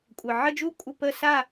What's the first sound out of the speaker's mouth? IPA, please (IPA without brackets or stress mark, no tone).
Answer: kʷʼ